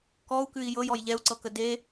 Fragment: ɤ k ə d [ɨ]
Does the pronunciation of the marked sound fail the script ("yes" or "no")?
yes